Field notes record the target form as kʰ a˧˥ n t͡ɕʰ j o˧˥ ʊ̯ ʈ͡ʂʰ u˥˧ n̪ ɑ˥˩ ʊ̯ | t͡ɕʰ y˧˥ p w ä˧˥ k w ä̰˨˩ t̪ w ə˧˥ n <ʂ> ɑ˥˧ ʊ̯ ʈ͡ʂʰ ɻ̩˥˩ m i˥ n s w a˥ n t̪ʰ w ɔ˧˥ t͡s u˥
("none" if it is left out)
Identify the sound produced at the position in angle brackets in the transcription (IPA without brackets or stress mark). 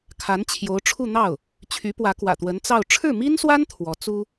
t͡s